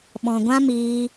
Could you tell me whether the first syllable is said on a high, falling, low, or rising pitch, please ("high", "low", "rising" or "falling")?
low